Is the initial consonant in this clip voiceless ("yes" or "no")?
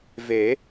no